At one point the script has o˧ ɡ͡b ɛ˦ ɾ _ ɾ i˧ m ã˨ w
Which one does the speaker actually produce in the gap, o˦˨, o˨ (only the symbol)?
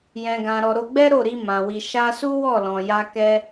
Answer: o˦˨